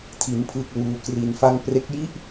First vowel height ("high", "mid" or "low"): high